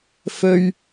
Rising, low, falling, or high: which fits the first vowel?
high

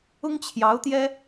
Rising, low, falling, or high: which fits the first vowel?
high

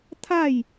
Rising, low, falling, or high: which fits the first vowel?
falling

